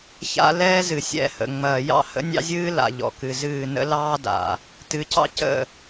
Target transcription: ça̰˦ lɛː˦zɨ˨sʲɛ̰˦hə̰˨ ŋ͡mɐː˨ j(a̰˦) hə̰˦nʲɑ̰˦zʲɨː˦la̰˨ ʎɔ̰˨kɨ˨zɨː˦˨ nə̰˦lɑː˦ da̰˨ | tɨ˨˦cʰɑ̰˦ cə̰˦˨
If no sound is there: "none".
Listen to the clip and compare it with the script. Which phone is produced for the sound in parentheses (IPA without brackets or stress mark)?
ɑ̰˦